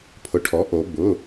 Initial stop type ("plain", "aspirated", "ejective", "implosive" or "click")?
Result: aspirated